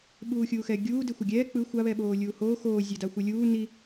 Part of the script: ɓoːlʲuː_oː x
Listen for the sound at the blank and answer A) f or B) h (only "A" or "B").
B